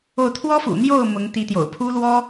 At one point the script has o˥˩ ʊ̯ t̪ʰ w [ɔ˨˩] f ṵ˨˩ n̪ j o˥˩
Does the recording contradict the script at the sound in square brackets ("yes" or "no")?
yes